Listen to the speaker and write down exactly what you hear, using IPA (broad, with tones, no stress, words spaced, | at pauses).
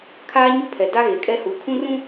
kʰaː˦ ɲu˦pʰɛ˨ da˦ɣe˨kʼɛ˦hu˨˦ kʰũ˦rũ˦